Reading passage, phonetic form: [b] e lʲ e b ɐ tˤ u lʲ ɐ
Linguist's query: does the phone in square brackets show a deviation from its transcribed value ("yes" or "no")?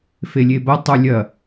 yes